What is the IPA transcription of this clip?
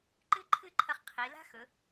ǃ ɨ˥ ǃʰ ɨ˥˧ ǃʰ ɐ˧ χ qʰ i˩˧ l a̤˥ x ɵ˩˧

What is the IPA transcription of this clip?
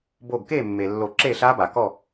b o˧˩ ɡ k e˥˨ mː e˩ lː o˨˩˦ ǁ e˥˨ ɬ a˦˥ b a˩ k ɔ˥˨

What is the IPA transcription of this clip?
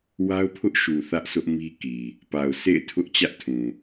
w a˦ ʊ̯ pʰ ʊ˦ ʔ ʃ u˨ θ ä˦ ʔ sʰ ʊ˦ ʔ m i˦ k i˨ | p a˨ ʊ̯ sʰ ḛ˦˨ ɪ̯ tʰ ʊ˦ ʔ t͡ɕ ä˦ ʔ tʰ ũ˨

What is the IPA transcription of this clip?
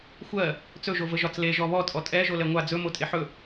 xʷ ɜ | t͡s ɵ ʒ o v ə ʒ ɒ t͡s l e ʒ ɔ β ɔ tʼ ɔ tʼ ɛ ʒ o l ɛ ŋʷ a d͡z ɵ m o tʼ e ħ ɵ

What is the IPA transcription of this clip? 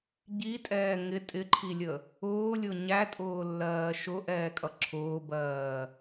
ɟ i tʼ ɛː ŋ ɪ tʼ ɪ ǃʰ i lʲ ə | ʊː lʲ ʊ ɲ æ tʼ ʊː lː ɜː ʃ ʊ ʔ ɛː kʼ ʌ ǁʰ ʊː b ɜː

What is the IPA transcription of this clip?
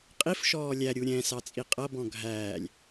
qʼ i f ʃ ɔː lʲ æ ɾʲ u ɾʲ ɛ̃ s ɑ t͡sʼ i qʼ ʌ b ɔ̃ ɡʱ æː lʲ

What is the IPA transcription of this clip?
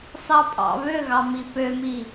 s ɑ pʼ ɑ̰ β ø ɣ ɑ m i p ø m i

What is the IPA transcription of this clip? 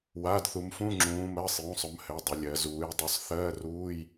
w a˩˧˩ d θ u˩˧ m f ũ˧˥˧ ŋ͡ǁ ũː˩˧ m ɜ˩˧˩ sˤ j ũ˩˧˩ sˤ ʊ˩˧ m h ɘ˩˧˩ dˤ ʊ˩˧ lʲ ɜ˩˧ z uː˩˧ j dˤ ʊ˧˥˧ sˤ θ ɜː˧˥˧ r uː˧˥˧ j

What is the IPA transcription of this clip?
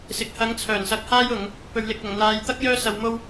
s ɪ˨ k̚ h ɐ˨˥ ŋ t͡sʰ œː˨˩ n s ɐ˧ k̚ h aː˥ j ʊ˨˧ ŋ | p ɵ˨ ɥ l ɪ˨ k̚ ɐ˨˩ ŋ n̪ aː˨ j t̪ ɐ˥ k̚ j œː˥ s ɐ˧ w m o˥ w

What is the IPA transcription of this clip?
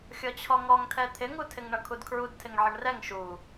xʲ ɔ t͡ɕʰ ɔ ŋ ɔ ŋ tʰ ɛ t̪ʰ ɪ ŋ u tʰ ɪ ŋ ɳ ʌ kʰ u d kʰ ɹ u d tʰ ɪ ŋ ʕ ə ɳ r ɛ ŋ ʃ u

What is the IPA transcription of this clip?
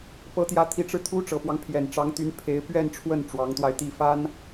p ɤ˧˥ t̪ j ä˧˥ t̪ʰ i˧˥ ʈ͡ʂ ɻ̩˧ t̪ʰ u˥ ʈ͡ʂ ɤ˨˩ p w ɑ˦ ŋ pʰ j ɛ˨˩ n ʈ͡ʂ ɑ˧˥ ŋ t̪ y˧˥ n pʰ e˧˥ ɪ̯ p ɥ ɛ˥˧ n ʈ͡ʂʰ w ə˥˩ n ʈ͡ʂ w ɑ˧˥ ŋ t̪ w a˧ ɪ̯ t̪ i˥˩ f a˥ n

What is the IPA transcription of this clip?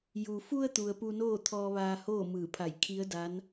j u˩ f u˧ ə̯ t̪ u˩ ə̯ p u˧ n oː˥˨ t̪ʰ ɔː˧ ʋ aː˧ h oː˥˨ m ɯː˧˩ pʰ a˧˩ j kʰ i˧˥ ə̯ d a˧˥ n

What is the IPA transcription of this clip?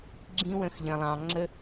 ɡ͡ǁ ĩ˦ w ə̃˦˨ x ʎ ə̃˧ lˠ ɑ̃˧ ŋ͡ǁ ə˦

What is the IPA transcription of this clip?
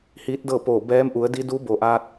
h iː˧˥ t̚ d ɤː˥˨ p oː˧˩ b ɛː˧˥ m ʔ u˩˧ ə̯ d i˧˥ d uː˧˥ b o˩ ʔ aː˧ t̚

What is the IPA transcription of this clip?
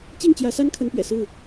t͡ɕ i˥˨ ŋ t͡ɕ j ä˨˦ s a˦ n kʰ ə˨˦ n p ɥ ɛ̰˨˩ s ɹ̩˥˨

